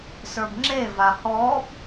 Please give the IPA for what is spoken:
sə˞bŋ͡ǁe vahɔb

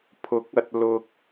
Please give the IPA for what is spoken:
pʰʊ˨˥k̚ɐ˨t̚ lʊ˨k̚

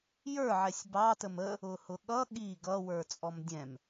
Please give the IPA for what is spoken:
jə˞ ʕɛsʲbɑ təmə | ʊhʊɠʌ ɠi ɡʌ wə˞t͡sʼɔmdʲɛ̃m

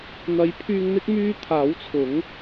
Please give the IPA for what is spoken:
n̪ɐ˨˥jpʰyː˧ŋn̪ɪ˥k̚ myː˥ t̪ʰaː˨˥wt͡sʰʊ˨˥ŋ

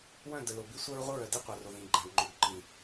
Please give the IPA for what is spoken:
wœ̃˦˨də˨ lo˨bi˦sʷɜ˦ɹ ʁʷə˦ɹœ˨di˦ qʷɜ˨ro˨ðĩ˨ɡ͡ǃa˨ɡ ŋ͡ǃo˨ɡǃĩ˨

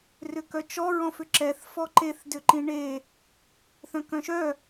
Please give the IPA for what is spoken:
rʏkœt͡ʃɔ ɹɔ̃fʏǁɛθ fɔǃeθ dʏǃĩɳe | θœ̃kœ̃ʃœ

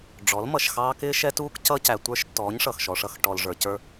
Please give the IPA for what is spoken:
ɖ͡ʐɔ˨˦lmʌ˨ʃxɑː˦ kɪː˦ʃɛ˦tuː˦k cʌ˦ cæ˨tʷə˞˦ʃtːɔː˨˦ɲ ʂʌ˨xʃɔ˨ʂʌ˦x ʈɔ˨l ʐə˞˨cə˞˦

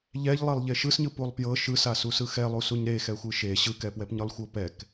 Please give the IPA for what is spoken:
ʎɛʎlˠelˠ ʎeʃɯsɲɯ pulˠpjɤ ʃɯsasusɯ xɛlˠusuɲ ɾexɛxʷɯ ʃe ɕɯkɛpwɛpɲɯlˠ xʷɤpɛk

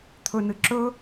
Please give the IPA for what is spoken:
t̪ʰɵnɨ ǁɵ

